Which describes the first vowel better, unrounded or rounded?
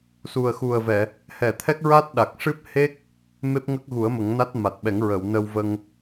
rounded